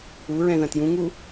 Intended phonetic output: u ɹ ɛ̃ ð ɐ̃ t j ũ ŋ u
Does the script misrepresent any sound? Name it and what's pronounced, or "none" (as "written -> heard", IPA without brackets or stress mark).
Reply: none